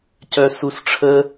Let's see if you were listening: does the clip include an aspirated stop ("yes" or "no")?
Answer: yes